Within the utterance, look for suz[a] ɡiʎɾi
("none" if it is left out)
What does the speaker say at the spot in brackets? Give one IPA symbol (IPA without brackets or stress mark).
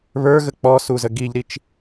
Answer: ə